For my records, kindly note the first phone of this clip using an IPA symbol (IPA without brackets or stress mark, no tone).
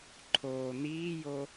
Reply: ǃʰ